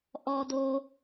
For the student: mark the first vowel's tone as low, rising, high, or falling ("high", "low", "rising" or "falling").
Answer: low